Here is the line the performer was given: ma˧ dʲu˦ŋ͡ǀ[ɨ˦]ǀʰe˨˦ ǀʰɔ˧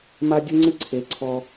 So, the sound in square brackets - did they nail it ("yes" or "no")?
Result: yes